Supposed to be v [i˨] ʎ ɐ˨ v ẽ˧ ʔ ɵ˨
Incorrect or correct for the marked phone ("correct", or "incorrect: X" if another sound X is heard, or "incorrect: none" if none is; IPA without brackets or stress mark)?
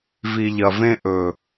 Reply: correct